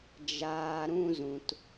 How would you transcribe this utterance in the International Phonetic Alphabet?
d͡ʒ aː˦ ɾ ũ˦ z ũ˧ t

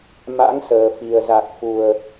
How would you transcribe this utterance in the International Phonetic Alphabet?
m a̰˧˥ ŋ s əː˨˩ f i˨˩ ə̯ z a˨˩ k̚ f u˨˩ ə̯

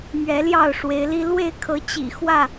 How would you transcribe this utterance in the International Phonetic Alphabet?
m ɥ ɛ˨˦ l j ɑ˥˨ ʊ̯ ʂ w e˨˦ ɪ̯ l i˦ l w e˥˨ ɪ̯ kʰ ɤ˨˦ t͡ɕ ḭ˨˩ x w ä˥˨

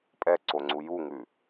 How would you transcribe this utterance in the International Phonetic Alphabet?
pʼ ɛ ǀ o ŋ͡ǀ u j u ŋ ʉ

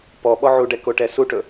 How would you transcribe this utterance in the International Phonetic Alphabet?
p ɔ ɓ ɔ ʕ u ɖ ɛ k o ʈ ɛ s u ʈ ɵ

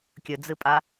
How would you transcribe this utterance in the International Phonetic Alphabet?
kʲ ɵ d͡z ɨ pʼ a

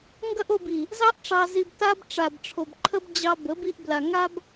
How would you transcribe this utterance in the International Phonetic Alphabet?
ŋ ɡ ɐ˦ ʔ o˧ b i˨ | z ɑ˦ ʔ ʈ͡ʂ ɑ˧ z i˧ b t a˧ b ʈ͡ʂ a˨ b ʈ͡ʂʰ o˨ b ǃʰ ə˦ b d͡ʑ ɑ˧ b ə˨˦ b i˧ ʔ b l a˨ ŋ a˦ b

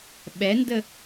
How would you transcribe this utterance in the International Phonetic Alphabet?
ɓ ɛ n d ə

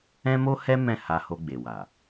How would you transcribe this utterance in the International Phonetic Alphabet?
ɛ̃˦ m o˦ h ɛ˦ m ɛ̃˦˨ h a˧ h o˧ ɡ͡b e˨ w a˨

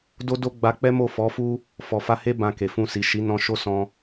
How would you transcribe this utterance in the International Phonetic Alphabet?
d o˦ d o˦ ɡ͡b a˧ k͡p ɛ˦ m o˦˨ f ɔ˨˦ f u˦ | f ɔ˨ f a˧ h e˦ b ã˧ k e˨ f ũ˧ s i˨ ʃ i˨˦ n ɔ̃˧ ʃ o˦ s ɔ̃˧

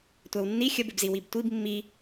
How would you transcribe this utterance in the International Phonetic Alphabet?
tʷ æ w nː i xʲ ə b ɪ b z i w i b tʷ i b mː i

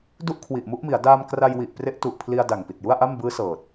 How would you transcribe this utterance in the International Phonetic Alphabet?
d u˥˩ ʔ kʰ w i˨˩ ʔ m u˥˩ ʔ m i˩˦ a̯ d aː˧ m k r a˧ j w i˨˩ ʔ p r e˦˥ ʔ t u˨˩ ʔ pʰ l i˧ a̯ d a˨˩ ŋ p i˨˩ t̚ j u˥˩ a̯ ʔ a˥˩ m b ɯː˦˥ s ɤː˨˩ t̚

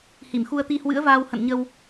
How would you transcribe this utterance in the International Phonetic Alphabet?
h i˧˩ m x u˧ ə̯ t̪ i˧ h w ɨ̰˧˥ ə̯ v aː˧ w h ə̰˧˨ n ɲ ə˧ w

